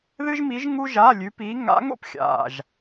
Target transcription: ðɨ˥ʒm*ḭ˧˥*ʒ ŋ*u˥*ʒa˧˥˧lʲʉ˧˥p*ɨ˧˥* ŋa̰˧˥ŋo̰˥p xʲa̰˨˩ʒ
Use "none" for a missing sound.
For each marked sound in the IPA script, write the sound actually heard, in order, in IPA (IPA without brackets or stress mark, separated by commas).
i˧˥, u˥, i˧˥